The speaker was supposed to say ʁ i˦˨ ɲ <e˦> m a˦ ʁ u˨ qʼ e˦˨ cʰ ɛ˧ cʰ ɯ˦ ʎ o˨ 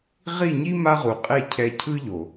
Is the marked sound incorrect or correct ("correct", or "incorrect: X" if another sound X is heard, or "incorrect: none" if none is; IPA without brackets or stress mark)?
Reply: incorrect: i˦